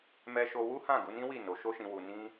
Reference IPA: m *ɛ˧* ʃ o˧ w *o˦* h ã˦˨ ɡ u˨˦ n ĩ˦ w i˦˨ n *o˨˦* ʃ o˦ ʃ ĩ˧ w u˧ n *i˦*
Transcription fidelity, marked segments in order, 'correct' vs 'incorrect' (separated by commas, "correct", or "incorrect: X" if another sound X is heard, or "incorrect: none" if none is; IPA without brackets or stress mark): correct, incorrect: u˦, correct, incorrect: ĩ˦